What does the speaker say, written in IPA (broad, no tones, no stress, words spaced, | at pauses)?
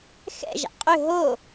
xɛ̰ʒa̰ qʼʏ ɦo